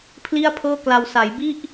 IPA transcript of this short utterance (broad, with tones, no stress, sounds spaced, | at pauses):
pʰ l i˥˩ a̯ pʰ ɤː˥˩ k l a˧ w s a˩˦ j b i˥˩ ʔ